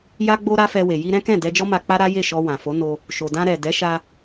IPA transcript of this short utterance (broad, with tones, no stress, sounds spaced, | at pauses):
j a˧ ɡ͡b o˧ ɾ a˦ f ɛ˧ w e˨ j i˧ ɾ ɛ̃˦ k ɛ̃˦˨ d ɛ˧ d͡ʒ ɔ˦ m a˧ k͡p a˦ ɾ a˦ j e˦˨ ʃ ɔ˧ w ã˨ f o˨˦ n o˧ | ʃ o˨ d ã˧ ɾ ɛ˨ d ɛ˨˦ ʃ a˧